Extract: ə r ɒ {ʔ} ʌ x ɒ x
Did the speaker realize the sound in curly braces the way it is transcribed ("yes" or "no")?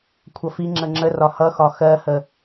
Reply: no